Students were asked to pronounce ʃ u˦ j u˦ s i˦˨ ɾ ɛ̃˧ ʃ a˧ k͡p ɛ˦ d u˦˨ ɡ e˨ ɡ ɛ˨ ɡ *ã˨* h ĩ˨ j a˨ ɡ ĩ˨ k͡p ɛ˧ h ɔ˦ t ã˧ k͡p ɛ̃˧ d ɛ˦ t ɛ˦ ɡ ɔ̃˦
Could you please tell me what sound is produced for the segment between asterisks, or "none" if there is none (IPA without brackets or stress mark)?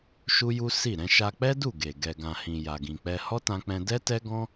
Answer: ã˨